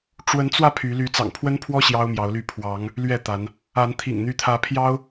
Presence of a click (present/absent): absent